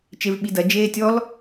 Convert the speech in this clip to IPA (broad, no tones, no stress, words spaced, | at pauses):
t͡ʃevɓidɐ d͡ʒeːtʲɔl